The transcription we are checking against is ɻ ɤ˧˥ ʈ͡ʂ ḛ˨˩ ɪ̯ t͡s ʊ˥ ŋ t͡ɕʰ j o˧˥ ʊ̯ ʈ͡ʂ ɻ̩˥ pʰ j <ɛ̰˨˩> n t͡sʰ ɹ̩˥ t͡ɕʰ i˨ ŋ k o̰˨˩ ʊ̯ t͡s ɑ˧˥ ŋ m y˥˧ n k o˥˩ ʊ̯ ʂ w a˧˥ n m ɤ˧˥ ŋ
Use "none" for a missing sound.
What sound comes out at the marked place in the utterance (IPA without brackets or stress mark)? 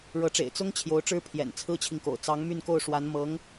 ɛ̰˨˩